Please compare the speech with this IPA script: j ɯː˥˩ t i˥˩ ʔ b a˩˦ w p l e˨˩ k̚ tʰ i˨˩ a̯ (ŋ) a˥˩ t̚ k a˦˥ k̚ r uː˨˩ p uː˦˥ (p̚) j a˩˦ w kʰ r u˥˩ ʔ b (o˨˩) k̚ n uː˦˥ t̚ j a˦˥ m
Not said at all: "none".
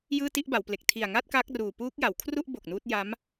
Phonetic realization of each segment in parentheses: ŋ, k̚, o˨˩

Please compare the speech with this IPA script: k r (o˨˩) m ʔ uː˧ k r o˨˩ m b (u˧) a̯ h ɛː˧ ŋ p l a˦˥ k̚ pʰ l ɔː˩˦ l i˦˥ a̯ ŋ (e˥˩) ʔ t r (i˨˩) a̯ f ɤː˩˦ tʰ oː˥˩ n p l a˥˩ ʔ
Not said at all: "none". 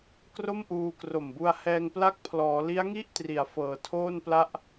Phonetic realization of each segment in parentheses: o˥˩, u˧, i˥˩, i˩˦

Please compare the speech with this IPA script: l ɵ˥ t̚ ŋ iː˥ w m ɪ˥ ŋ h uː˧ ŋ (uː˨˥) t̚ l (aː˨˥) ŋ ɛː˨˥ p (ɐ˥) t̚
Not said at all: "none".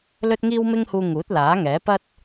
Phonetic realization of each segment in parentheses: uː˨˥, aː˨˥, ɐ˥

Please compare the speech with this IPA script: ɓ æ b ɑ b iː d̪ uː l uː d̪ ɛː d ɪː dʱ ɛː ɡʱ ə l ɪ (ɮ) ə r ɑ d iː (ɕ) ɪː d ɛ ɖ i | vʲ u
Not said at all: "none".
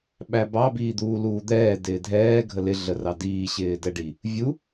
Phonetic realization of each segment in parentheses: ɮ, ɕ

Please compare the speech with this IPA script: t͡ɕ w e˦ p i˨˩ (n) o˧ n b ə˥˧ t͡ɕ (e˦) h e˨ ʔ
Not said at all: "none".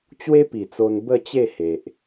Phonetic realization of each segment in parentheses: t͡s, e˥˧

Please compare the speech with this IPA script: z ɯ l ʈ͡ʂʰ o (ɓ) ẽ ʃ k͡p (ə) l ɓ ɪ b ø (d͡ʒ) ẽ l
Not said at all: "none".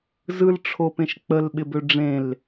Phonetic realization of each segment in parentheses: p, ə, ɖ͡ʐ

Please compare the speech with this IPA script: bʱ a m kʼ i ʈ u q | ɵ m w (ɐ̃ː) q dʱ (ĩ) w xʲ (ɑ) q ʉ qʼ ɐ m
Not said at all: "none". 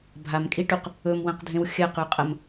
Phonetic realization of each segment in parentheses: ɐ̃, ẽ, ɐ

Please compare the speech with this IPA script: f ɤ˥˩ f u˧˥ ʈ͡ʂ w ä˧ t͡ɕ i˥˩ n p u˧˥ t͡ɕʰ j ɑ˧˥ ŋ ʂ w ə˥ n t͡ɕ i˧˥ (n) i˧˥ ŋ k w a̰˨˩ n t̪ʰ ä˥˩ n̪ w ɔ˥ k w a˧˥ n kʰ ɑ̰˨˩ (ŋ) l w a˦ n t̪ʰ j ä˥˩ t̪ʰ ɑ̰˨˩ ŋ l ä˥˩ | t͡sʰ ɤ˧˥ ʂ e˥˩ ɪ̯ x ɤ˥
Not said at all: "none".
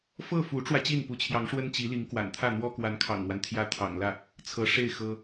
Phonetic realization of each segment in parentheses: l, ŋ

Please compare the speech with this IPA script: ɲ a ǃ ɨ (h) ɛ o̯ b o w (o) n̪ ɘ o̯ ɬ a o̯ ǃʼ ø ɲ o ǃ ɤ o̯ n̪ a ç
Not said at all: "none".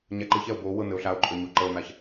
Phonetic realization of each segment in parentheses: ç, ɤ

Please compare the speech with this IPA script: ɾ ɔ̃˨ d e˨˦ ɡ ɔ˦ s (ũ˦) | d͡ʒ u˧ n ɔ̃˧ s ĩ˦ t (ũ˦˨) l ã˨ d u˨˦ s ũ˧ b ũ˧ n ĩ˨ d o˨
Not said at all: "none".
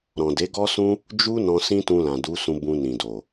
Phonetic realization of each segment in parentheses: ũ˦, ũ˧

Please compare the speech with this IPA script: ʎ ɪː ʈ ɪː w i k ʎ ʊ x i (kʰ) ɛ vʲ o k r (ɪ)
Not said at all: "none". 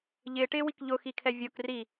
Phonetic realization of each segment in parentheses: kʰ, i

